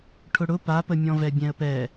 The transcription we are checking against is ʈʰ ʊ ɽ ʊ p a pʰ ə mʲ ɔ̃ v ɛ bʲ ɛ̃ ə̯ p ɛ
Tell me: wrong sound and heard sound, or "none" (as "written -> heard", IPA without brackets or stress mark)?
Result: pʰ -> p